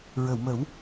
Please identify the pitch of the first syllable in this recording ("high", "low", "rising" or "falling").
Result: low